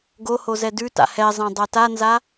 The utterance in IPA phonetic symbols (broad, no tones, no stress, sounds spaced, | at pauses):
ɡ o h o z ɛ d ʉ t a̰ h ɛ zˤ ɛ̃ dˤ a t a n z a